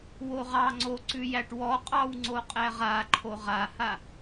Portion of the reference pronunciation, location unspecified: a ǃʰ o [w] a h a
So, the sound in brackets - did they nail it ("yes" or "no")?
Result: no